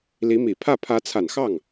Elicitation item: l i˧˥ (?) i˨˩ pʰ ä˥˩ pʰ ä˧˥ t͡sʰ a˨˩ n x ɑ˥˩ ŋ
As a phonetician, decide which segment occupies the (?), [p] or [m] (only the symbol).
m